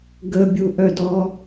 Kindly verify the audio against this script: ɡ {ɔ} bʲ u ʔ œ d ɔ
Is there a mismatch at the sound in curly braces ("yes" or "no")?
yes